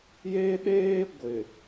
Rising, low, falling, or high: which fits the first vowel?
high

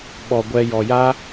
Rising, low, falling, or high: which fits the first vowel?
low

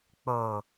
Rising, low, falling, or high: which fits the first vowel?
low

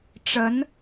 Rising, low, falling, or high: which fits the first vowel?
rising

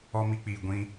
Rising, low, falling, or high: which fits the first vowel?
high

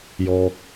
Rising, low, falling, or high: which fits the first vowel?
low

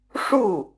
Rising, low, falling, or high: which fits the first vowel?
falling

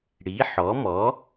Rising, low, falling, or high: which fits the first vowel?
rising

